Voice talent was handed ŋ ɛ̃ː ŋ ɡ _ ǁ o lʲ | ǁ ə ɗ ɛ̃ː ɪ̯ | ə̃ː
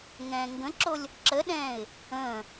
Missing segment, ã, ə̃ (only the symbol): ə̃